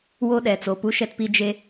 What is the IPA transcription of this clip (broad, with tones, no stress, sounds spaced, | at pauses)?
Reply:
w o˦ ɗ ɛ˨ t͡s o˨ p u˦ ʃ ɛ˦ t p i˦ d͡ʒ e˦